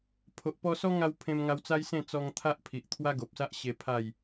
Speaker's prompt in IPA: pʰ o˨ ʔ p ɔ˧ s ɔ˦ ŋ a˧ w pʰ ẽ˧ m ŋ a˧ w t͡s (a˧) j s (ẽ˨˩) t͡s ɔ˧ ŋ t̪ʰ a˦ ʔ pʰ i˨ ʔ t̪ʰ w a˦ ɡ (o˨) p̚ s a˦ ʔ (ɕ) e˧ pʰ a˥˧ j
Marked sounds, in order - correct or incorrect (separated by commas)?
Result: incorrect, incorrect, correct, correct